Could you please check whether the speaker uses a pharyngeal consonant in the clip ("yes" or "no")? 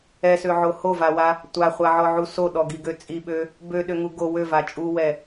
yes